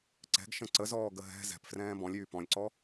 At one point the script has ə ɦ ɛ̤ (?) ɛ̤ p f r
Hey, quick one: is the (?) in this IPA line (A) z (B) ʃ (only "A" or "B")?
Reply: A